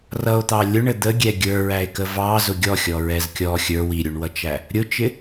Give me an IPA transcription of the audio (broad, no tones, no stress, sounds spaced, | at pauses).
r ʌ o̯ t̪ ɑ lʲ ʊ ɳ ə d̪ ə ɡʲ ɛ ɡʲ ə˞ ɹ æ e̯ k ə v ɑ z ʊ ɡʲ ɔ xʲ ɔ ɹ ɛ z kʲ ɔ xʲ ə˞ w i ɾʲ u ɳ w ʌ t͡ʃ æ | ɾʲ ʊ t͡ʃ ɪ